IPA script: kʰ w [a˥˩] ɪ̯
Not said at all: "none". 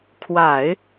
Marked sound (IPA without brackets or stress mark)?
a˨˩˦